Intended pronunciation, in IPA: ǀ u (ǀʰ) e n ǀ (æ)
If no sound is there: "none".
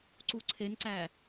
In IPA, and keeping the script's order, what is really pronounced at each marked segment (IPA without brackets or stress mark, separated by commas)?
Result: ǀʰ, æ